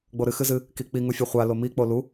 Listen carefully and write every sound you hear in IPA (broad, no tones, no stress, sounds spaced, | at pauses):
ɡ͡b o ɾ ɨ x ɨ z ɨ | k i k͡p i ŋ u fʲ a χʷ a l o m i k͡p o l u